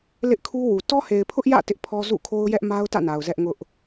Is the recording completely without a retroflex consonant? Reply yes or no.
yes